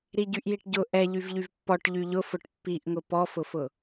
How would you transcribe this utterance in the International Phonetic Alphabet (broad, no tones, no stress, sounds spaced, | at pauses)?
ɾ i ɟ y ʔ j i ʈ ɟ ʊ ʔ ɛ ʎ y v ʎ y v pː ɔ ʈ ʎ y ʎ ʊ f ʊ ʈ pː i ʔ ŋ ʊ p ɔ f ʊ f ʊ